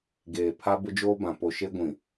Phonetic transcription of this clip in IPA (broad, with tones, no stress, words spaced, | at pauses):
ɡeː˨ pʰa˦bʊ˦d͡ʒoː˦bã˨ po˨ʃe˦ɡʷĩ˨